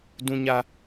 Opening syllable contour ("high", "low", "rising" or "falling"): high